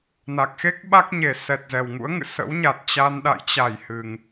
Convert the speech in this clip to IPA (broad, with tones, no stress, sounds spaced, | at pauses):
n a˨˩ k̚ x e˦˥ k̚ ɓ a˦˥ k̚ ɲ e˨˩ s ɛ˨˩ t̚ z ɛ˨˩ w ŋ ṵ˧˥ ə̯ ŋ ɨ̰˧˨ s ə̰˧˥ w ɲ a˨˩ t̚ t͡ɕ a˧ n ɗ a̰˧˨ j t͡ɕ a˧˩ j h ɨ˨˩ ŋ